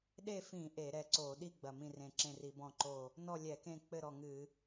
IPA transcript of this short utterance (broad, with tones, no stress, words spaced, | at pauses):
ɗe˥˨fĩ˧˩˧ ʔe˧˩˧ɾɛ˧˩ǀo˧˩˧ ɗi˥˨ ɡ͡bɐ˧˩mĩ˥˨rẽ˧˩ǁẽ˥˨ ri˧˩˧bɔ̃˥˨ǃo˥˨ | nɔ˥˨lʲɛ˧˩˧kẽ˥˨k͡pɘ˥˨ ɾɔ˧˩ŋɨ˧˩˧